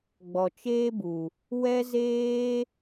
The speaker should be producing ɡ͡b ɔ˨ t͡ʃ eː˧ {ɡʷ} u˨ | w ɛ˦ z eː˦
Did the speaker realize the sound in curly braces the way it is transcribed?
no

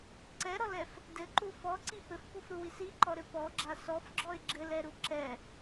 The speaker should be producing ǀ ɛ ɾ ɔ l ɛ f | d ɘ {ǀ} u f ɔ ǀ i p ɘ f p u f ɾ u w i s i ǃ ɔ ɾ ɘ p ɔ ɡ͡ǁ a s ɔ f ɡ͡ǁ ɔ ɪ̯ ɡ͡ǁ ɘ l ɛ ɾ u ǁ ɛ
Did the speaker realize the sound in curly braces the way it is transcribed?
no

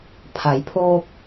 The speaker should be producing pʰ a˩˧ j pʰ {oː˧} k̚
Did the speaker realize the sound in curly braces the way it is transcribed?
yes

